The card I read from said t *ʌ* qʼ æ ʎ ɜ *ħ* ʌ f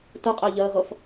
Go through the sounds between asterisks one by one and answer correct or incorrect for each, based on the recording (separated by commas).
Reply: incorrect, incorrect